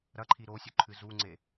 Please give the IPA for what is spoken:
ɾ ɐ ǃʰ i ɾ o sʲ ɵ ǃʰ ɨ z u ŋ͡ǀ e

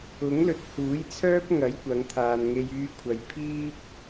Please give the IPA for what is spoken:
ʊ˨˥ ŋ l ɵ˨˥ t̚ h uː˨˥ j t͡sʰ œː˥ p̚ ŋ ɐ˨˥ j kʷ ɐ˨˧ ŋ t̪ʰ aː˨ n ŋ e˧ j yː˧ kʷʰ ɐ˨ j pʰ iː˥ p̚

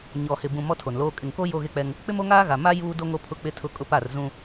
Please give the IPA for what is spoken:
ɲ ɔ˨ h ɪ˨ b ũ˨ m ɔ˦ tʰ o˨ n l oː˦ kʼ ɪ˨ ŋ k o˦ j o˦ ɣ e˦ k͡p ɛ˦ ŋ | k͡p ɪ˦ m o˦ ŋ aː˦ ɣ a˨ m a˦ j uː˦ d o˦ ŋ o˦ pʰ ʊ˦ k͡p ɪ˦ tʰ ʊ˦ kʼ ʊ˦ p a˦˨ r z ũ˦

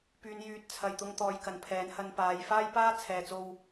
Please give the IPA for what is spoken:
p yː˨˧ n j yː˨ t̚ t͡sʰ ɐ˨ j t̪ ʊ˧ ŋ t̪ ɔː˨ j k ɐ˨ n pʰ ɛː˨˥ n h ɐ˧ n p aː˨˧ j f aː˥ j p aː˥ t͡sʰ ɛː˨ t͡s o˧ w

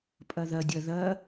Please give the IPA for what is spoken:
pʼ ɐ ð ɐ dʲ ɐ ð ɐ

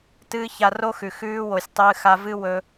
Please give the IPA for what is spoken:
t ɨː˧ ç a˧ r o˦ x ʉ˨ x ʉː˧ w o˨ sʲ tˤ ɨː˧ x a˧ v ɨ˦ w ɵ˧

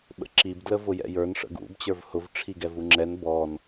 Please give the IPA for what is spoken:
ɓ ə̰ ǁ i b d l ə v ʊ j ɛ̰ j ə˞ n ʂ ə̰ ɡ ṵ b t͡ɕ ə˞ v h ʊ v ʈ͡ʂʰ i ɡ ɛ v u ŋ͡ǁ ɛ n b ɔ n

